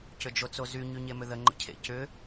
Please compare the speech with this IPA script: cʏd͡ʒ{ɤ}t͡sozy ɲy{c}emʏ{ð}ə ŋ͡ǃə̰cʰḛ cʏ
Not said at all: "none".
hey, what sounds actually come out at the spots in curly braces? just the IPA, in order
o, ɲ, ð

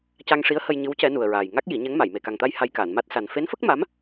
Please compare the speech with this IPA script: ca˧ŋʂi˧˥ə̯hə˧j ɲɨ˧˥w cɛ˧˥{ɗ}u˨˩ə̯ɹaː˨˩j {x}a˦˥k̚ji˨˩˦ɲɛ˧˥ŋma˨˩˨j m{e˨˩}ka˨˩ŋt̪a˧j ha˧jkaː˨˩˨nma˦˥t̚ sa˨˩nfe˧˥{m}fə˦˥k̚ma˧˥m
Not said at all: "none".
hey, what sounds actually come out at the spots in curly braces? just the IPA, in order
n, ŋ, e˨˩, n

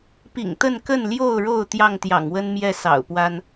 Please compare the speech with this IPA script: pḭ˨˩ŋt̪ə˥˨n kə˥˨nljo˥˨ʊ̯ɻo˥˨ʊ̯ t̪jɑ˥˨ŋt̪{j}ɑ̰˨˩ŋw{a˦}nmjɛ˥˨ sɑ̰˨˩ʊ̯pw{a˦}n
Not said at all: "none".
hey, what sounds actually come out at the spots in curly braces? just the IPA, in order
j, ə˦, a˦

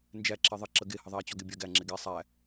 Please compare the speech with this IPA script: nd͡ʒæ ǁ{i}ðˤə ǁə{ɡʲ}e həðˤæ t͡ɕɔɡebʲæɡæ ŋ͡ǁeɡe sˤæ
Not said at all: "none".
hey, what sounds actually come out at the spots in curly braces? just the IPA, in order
e, ɡ

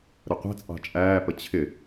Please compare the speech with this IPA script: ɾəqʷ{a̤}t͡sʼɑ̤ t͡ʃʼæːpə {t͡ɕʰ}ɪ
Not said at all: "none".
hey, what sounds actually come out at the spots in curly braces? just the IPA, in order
æ̤, t͡ɕʰ

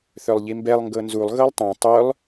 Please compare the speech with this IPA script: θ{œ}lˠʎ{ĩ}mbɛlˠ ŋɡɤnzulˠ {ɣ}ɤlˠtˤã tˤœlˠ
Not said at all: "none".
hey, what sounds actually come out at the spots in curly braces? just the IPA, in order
œ, i, ɣ

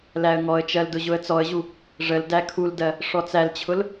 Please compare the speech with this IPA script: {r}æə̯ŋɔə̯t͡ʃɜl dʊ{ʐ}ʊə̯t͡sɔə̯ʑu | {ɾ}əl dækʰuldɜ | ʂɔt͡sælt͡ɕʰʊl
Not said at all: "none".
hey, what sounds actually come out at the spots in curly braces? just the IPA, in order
l, ʑ, ʐ

